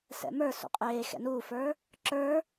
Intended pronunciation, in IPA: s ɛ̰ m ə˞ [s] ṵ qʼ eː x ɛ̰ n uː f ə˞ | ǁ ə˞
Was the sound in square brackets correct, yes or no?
yes